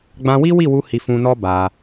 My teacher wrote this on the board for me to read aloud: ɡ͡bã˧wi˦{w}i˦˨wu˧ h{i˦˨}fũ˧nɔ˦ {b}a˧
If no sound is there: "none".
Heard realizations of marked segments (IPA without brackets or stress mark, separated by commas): w, i˧, b